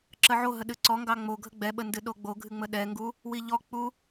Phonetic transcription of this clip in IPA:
ǁ ə ʕ o ɦ ə ɗ ɨ ǀ ɔ ŋ ɡ ɑ ŋ͡m o ɡʱ ə ɡ͡b ɛ ɓ ə n d ɨ ɗ o ɡ͡b o ɡʱ ɨ ŋ͡m ə ɗ ɛ ŋ ɡ u | w i ʎ ɔ k͡p u

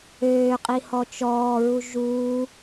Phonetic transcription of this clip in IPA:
øː qʼ i h ɔ t͡ʃ ɔː ɹ u ʒ uː

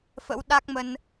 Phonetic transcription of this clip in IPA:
f ə̰˧˥ w ɗ a˦˥ k̚ m ə˧ n

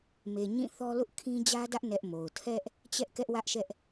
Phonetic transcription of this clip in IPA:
m e˨ ɲ ĩ˦˨ θ ɔ˦ l ʊ˦ ʔ kʰ ĩ˦ d͡ʑ ä˦ d ä˦ ʔ n ɛ˦ ʔ m o˨ ʊ̯ tʰ ɛ˦ ʔ | t͡ɕ ɛ˦ ʔ k ɛ˦ ʔ w ä˦ ʔ ʃ ɛ˦ ʔ

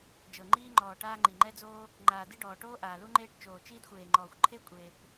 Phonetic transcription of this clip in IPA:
d͡ʒ ɤ˩ ŋ͡ǃ iː˧ ŋ͡ǃ ɔː˩ ʈ aː˧ ŋ͡ǃ i˩ ŋ͡ǃ ɛ˧ d͡z oː˧ | ŋ͡ǃ aː˩ d i˧ ɖ ɔː˩ ʈ oː˧ ʔ aː˩ l u˧ ŋ͡ǃ eː˧ ʈ t͡ʃ oː˩ t͡ʃ iː˧ d xʷ eː˩ ŋ͡ǃ ɔː˩ xʷ ǃʰ e˧ kʷʼ eː˩ kʷ

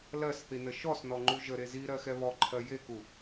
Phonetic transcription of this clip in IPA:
l ɜ s θ i n ə ʃ ɔ s n ɔ ŋ͡ǃ u ʒ ə ɾ e z i ɾ ɜ x ɛ β ɔ ǃʰ ɜ j e k u

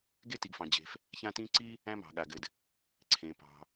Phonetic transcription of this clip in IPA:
ɡ e˥ t i˩ ɡ f ɑ̃˩ d͡ʑ e̤˩ f | ç ã˥ t ĩ˥ ǀ i˥ | æ̃˥ m ɑ̤˩ ɠ a˩ ɡ ɘ˩ d | ǀʰ ẽ˩ p ɑ̤˩

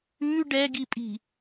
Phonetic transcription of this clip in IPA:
ʉ ɖ ɛ ɡ i pʼ i̤

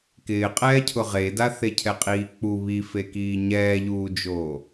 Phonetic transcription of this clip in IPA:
k ɪː qʼ ɛː cʰ ʊ ʁ e d a θ e cʰ ɛ qʼ iː k͡p u β i f e k iː ɲ ɛː ʎ uː d͡ʒ oː

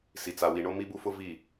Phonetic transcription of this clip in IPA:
s i˨ t͡s a˨ w i˨ ɳ o˦ m i˦ b u˦ f ʊ˦ v i˦˨

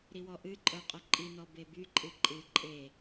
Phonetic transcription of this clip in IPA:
ɾ i w ɔ ʔ ɨ ǃʼ œ qʼ œ ǃʼ i n ɔ b e b y ǃʼ ɨ ǃʼ ɨ ǃʼ e

